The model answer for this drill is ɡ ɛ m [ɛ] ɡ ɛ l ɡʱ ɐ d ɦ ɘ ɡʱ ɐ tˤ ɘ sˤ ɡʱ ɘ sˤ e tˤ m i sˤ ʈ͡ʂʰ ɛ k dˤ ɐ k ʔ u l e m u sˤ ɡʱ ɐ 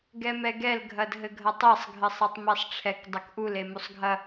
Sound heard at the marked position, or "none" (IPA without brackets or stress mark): ɛ